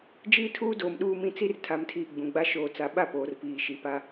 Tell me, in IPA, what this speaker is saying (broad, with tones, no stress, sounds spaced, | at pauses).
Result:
d͡ʒ iː˦ tʰ uː˦ d oː˨ m ɗ uː˦ m ĩ˦ t͡s i˦ r tʰ a˨ m tʰ iː˨ ɡ͡b ũ˨ ɡ͡b a˦ ʃ oː˨ t͡s a˨ ɓ a˦˨ p oː˨ r p iː˨ ʃ i˨ p a˦